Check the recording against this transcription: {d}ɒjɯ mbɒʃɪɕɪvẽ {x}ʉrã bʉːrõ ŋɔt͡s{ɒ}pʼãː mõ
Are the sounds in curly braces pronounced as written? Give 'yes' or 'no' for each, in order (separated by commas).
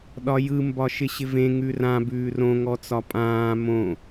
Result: no, no, yes